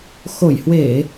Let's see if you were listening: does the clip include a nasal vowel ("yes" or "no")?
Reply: no